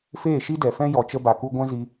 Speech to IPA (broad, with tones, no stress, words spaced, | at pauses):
feː˦˨ʃi˦dɛ˨fɛ̃˦ jɔ˨t͡ʃə˧ba˨ku˧ ɡʷɛ̃˦ zi˧